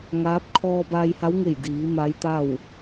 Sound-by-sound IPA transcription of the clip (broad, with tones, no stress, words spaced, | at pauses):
ŋaː˧˥p̚ kʰɔː˧baː˧jha˧˥wŋe˧˩j diː˩˧ ma˧˥jt̪a˥˨w